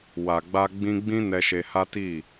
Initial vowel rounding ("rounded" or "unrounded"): unrounded